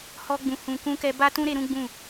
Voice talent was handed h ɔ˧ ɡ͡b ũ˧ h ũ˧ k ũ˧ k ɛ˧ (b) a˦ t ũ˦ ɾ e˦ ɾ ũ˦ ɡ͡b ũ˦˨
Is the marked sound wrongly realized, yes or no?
no